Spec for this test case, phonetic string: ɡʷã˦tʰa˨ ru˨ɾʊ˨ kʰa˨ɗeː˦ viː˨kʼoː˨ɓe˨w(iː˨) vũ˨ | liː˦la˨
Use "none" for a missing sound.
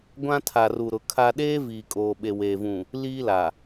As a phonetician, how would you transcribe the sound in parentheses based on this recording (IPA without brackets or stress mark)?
eː˨